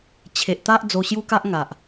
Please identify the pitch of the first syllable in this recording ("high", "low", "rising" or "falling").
low